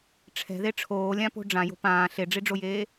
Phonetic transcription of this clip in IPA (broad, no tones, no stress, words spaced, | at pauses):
ʈ͡ʂʰɛ̤ðe ʈ͡ʂʰoːlʲãpo̤ ɖ͡ʐãjo̤ pãː ɬeɖ͡ʐiɖ͡ʐojeː